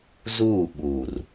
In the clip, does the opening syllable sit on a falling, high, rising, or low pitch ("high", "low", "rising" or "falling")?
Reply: falling